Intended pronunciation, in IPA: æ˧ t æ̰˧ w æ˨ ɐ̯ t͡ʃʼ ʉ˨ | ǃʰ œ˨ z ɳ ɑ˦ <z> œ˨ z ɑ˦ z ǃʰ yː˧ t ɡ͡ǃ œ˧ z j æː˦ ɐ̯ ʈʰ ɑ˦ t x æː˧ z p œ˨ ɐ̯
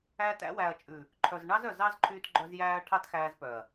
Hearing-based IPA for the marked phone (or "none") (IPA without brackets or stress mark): z